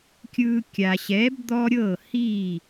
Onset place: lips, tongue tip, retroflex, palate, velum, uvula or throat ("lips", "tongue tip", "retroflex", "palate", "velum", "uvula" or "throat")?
velum